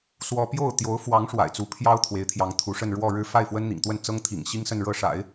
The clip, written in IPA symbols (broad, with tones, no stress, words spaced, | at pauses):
swɔ˥ pjo˥˩ʊ̯ t̪jo˧˥ʊ̯fwɑ˧˥ŋ ʂwa̰˨˩ɪ̯t͡su˧˥pʰjɑ˥ʊ̯ t̪ʰwe˧˥ɪ̯t̪ʰjɑ˧˥ŋt̪ʰu˧˥ʂə˥˧n ɻwɔ˥˧ɻɻ̩˥˧ fa˥˩ɪ̯fwə˥nn̪ḭ˨˩ŋt̪wə˥˩n t͡sɤ˥ŋt̪ʰḭ˨˩ŋɕi˥ŋ sə˥˧nɻɤ˥˩ʂa̰˨˩˦ɪ̯